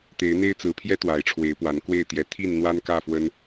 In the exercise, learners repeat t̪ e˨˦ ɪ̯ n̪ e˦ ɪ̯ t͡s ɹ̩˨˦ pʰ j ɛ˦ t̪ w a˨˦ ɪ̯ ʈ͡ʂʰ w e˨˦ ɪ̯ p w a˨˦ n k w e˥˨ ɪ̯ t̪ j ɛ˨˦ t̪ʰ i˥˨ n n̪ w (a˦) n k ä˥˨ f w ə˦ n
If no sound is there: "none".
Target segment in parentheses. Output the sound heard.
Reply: a˦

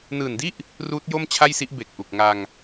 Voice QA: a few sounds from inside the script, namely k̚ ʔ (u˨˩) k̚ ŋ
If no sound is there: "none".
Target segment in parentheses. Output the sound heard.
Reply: u˨˩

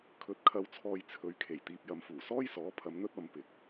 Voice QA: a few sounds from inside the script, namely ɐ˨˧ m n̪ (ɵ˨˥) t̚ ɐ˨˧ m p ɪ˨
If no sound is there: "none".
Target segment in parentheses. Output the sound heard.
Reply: ɵ˥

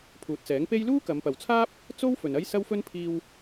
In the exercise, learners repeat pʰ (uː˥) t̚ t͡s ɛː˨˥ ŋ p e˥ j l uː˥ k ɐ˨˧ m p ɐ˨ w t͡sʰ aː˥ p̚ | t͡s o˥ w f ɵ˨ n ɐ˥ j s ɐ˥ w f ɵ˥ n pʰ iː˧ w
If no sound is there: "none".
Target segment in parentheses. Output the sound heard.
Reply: uː˨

